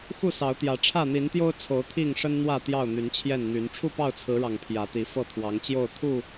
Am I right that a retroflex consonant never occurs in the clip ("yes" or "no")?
no